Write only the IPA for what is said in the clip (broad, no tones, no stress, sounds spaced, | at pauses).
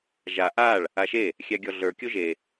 ʒ a ʔ a ɭ | a ʃ e | xʲ æ ɡʲ ɔ ɮ ə˞ kʲ o ʒ e